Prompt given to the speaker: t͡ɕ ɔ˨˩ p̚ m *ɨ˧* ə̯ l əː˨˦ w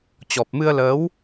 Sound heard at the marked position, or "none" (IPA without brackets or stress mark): ɨ˧